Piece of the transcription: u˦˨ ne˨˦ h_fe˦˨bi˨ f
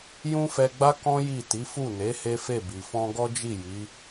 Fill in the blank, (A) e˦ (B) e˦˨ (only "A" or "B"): A